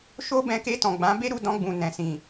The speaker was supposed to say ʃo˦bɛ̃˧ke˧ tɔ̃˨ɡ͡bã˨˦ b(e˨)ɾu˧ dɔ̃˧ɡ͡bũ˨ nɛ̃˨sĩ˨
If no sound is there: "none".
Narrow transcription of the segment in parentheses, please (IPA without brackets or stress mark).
e˦